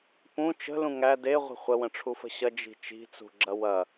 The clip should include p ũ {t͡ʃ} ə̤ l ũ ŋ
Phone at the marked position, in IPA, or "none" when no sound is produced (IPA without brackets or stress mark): t͡ʃ